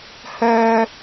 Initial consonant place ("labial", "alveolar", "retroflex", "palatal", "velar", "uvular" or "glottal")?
glottal